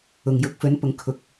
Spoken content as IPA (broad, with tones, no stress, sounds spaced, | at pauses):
ʊ˨ ŋ j ʊ˨˥ k̚ f ɵ˨˥ n p ʊ˨ ŋ kʰ ʊ˨ k̚